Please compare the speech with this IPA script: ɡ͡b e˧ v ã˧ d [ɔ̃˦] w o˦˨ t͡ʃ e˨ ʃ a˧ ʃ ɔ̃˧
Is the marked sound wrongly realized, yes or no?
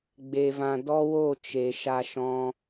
yes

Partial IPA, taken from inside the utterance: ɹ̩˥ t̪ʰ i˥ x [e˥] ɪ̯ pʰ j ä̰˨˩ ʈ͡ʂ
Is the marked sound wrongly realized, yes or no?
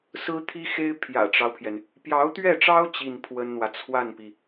no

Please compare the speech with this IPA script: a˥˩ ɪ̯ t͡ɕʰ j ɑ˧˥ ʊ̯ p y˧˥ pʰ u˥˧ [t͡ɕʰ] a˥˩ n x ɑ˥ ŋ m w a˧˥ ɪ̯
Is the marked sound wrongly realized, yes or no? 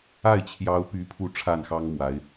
yes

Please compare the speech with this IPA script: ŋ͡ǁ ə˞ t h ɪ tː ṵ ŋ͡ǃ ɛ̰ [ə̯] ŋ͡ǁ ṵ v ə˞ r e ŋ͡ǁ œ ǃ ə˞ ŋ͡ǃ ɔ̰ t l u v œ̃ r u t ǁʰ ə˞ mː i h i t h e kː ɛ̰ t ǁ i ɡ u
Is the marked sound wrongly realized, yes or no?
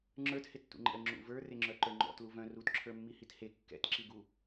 no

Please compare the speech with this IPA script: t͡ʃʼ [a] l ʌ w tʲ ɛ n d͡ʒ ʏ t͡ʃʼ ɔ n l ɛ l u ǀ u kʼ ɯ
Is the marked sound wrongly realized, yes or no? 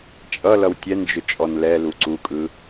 yes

